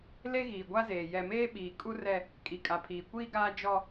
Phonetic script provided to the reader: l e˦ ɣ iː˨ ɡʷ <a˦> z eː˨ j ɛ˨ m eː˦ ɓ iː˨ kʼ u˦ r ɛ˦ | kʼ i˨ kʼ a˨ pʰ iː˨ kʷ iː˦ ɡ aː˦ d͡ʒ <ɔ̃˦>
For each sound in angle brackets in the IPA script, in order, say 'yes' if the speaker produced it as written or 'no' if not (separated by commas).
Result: yes, no